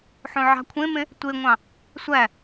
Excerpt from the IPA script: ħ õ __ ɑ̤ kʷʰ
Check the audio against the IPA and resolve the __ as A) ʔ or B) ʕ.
B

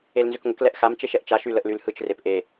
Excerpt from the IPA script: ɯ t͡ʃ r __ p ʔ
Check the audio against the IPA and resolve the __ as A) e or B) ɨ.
A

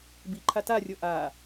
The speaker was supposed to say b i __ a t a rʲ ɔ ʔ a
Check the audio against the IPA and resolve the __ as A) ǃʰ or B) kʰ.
A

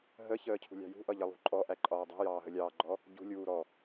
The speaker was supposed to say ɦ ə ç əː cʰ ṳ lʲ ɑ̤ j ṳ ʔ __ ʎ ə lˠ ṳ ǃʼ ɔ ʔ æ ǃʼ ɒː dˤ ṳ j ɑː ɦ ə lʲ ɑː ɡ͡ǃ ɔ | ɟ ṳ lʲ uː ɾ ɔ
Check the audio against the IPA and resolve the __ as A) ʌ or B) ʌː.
A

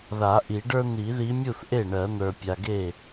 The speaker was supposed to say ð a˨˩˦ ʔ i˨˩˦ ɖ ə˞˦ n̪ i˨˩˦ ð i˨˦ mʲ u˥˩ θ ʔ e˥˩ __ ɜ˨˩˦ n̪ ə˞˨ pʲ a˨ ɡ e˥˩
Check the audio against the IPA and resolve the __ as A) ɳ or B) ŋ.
A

